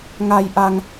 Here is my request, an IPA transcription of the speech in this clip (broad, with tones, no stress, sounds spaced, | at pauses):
ŋ a˧ j ʔ a˧ ŋ